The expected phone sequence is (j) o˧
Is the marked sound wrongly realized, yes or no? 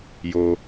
no